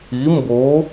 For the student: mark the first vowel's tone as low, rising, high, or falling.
rising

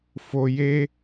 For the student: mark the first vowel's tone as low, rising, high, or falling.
low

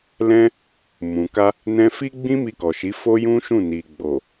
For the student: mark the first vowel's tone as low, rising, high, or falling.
high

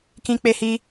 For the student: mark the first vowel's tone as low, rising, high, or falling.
high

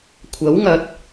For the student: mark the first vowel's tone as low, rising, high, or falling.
rising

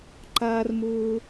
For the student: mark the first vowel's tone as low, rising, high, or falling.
high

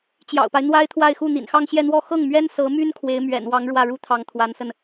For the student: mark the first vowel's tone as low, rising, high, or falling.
low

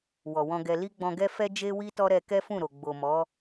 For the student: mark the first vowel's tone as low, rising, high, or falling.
low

